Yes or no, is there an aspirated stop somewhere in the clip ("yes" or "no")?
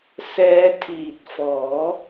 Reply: yes